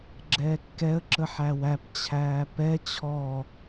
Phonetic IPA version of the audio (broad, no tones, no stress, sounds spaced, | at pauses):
ɡ͡ǁ ɛː kː ɛ ə̯ ǁ ə ħ æ w æ p t͡ɕʰ æː p ɛ t͡ɕʰ ɔ